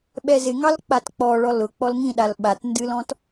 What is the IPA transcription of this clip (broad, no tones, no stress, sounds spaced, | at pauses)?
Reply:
ɓ ɛ z ɪ ŋ ɑ l k͡p a t k͡p ɔ ɭ ɔ l ʊ k͡p ɔ l ŋ ĩ ɗ a l ɓ a t n d ɨ l ɔ̃ t